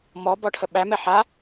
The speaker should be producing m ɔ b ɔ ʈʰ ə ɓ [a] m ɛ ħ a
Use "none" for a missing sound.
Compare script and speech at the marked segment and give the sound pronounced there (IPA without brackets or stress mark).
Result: æ